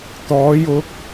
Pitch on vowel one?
rising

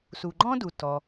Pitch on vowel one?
low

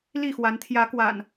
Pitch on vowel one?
falling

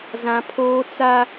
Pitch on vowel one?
high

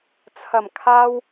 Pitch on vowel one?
low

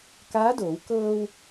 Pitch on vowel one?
rising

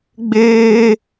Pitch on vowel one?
high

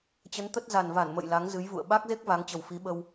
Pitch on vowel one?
rising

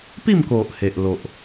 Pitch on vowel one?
falling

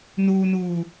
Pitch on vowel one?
low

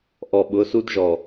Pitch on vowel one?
low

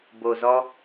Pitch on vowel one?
low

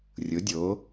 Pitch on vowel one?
rising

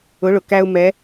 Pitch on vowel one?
rising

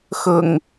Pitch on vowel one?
low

